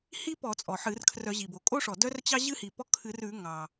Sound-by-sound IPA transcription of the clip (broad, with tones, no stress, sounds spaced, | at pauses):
h i˥ p ɔ˧˩˧ t͡sʼ ɔ˩ ħ ɨ˧˩˧ r kʰ r œ˧˩˧ ʑ i˩ b o˩ kʼ o˥ ʂ ɔ˩ d œ˥ r t͡ɕ ɑ˥ ʑ ɨ˥ h i˩ p ɔ˥ kʰ ɨ˧˩˧ r ʉ˧˩˧ ŋ ɑ˩